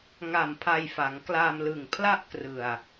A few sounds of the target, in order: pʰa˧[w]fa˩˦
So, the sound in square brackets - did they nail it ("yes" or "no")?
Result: no